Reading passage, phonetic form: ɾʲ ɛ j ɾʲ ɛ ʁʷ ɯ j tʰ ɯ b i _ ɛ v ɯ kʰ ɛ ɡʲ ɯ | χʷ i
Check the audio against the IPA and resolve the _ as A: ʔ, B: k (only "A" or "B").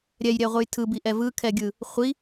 A